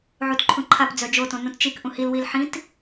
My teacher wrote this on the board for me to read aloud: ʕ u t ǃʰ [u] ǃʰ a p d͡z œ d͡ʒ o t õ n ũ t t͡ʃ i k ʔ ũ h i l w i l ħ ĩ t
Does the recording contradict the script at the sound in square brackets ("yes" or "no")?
yes